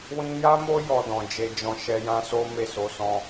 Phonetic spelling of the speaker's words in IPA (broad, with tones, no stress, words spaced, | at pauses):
wĩ˧ja˦mo˦ jɔ˧dɔ̃˨ d͡ʒe˨d͡ʒɔ̃˨ ʃɛ˧jã˦so˦ me˦˨so˨˦sɔ̃˧